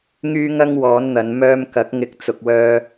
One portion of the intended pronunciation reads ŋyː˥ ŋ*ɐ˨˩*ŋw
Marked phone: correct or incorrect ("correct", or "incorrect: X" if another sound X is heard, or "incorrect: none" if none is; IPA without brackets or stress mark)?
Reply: incorrect: ɐ˥